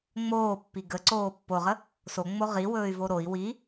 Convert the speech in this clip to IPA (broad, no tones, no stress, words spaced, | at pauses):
ŋ͡moːpːi ɡəǀoː pːoʁə | soŋ͡mo ʁiwɵːy̯vo ɾoi̯ wi